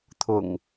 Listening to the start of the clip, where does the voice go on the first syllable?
low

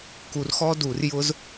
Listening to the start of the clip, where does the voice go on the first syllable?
low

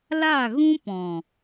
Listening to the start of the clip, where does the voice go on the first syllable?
falling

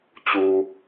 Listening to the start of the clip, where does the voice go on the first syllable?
low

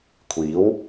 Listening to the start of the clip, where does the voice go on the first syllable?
rising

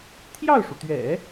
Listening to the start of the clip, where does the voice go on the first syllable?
falling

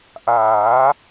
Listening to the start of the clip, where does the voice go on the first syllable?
rising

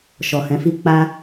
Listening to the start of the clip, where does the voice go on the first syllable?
low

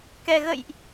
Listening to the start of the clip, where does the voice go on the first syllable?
low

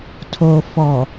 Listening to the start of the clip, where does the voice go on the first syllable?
low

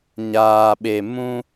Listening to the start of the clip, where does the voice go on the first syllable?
low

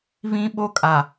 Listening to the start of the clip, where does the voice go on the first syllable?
high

